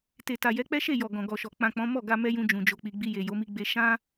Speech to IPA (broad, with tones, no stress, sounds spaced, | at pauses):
t e˨ t a˨ j ɛ˨˦ k͡p ɛ˦ ʃ e˦˨ j ɔ˨ ɡ ɔ̃˨ ɡ ɔ˨ ʃ ɔ˨ k͡p ã˨ k͡p ɔ̃˨˦ m ɔ˦˨ ɡ a˧ m ɛ˧ j ũ˧ d͡ʒ ũ˨ d͡ʒ o˨ k͡p i˨ ɡ͡b i˧ j e˨ j o˨˦ m i˧ ɡ͡b e˧ ʃ ã˦